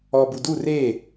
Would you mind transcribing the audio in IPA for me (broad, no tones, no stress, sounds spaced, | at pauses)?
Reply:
ɔ b u d u r e